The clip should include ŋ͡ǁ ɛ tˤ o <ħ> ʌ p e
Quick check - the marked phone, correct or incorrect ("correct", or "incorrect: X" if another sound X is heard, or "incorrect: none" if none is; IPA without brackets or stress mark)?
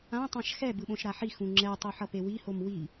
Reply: correct